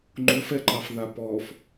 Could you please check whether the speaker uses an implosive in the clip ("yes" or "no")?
no